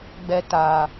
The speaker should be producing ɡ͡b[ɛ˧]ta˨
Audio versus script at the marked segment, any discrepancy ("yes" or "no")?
no